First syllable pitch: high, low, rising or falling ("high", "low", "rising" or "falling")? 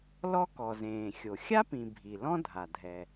high